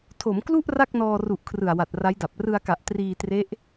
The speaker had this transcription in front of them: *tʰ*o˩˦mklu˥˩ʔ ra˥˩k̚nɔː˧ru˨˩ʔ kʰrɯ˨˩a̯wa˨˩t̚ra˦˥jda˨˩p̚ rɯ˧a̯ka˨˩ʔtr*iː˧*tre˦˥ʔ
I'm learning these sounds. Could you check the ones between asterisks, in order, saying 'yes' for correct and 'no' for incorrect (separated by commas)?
yes, yes